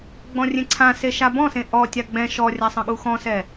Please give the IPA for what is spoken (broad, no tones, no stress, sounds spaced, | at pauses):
ɡ͡b ɔ̃ rʲ ẽ ǀʰ ã s e ʃ a b ɔ̃ s ẽ ʔ ɔ tʲ a ɡ͡b ɛ̃ ʃ ɔ rʲ a sˤ ə̃ ɠ u x ɔ̃ s ɛ